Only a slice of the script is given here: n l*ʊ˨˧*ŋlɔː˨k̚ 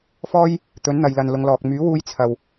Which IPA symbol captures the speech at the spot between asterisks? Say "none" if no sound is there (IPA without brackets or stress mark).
ʊ˨˧